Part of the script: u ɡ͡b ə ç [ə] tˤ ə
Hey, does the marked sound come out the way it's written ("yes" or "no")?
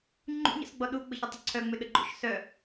no